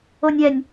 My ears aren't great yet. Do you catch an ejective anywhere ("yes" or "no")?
no